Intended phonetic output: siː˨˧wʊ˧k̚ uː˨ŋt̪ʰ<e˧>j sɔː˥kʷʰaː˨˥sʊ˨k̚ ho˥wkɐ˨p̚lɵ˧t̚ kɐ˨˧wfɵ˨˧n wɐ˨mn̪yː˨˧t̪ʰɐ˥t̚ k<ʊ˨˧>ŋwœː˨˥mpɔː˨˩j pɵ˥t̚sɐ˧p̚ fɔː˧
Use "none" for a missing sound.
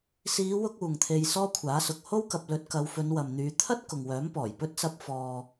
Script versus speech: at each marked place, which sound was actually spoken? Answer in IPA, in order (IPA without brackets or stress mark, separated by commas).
e˧, ʊ˨